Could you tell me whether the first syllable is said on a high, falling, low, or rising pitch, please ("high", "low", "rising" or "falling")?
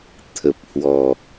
low